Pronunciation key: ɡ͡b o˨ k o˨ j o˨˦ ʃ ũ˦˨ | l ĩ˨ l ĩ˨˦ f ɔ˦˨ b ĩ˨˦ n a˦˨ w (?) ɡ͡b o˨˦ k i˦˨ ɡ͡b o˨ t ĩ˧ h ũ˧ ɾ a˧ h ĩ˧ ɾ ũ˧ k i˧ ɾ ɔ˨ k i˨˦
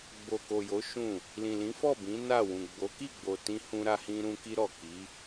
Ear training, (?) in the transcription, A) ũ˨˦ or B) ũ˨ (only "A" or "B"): B